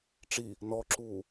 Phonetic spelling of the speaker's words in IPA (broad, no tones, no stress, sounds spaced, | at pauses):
ʈ͡ʂ i | n ɔ ǁ uː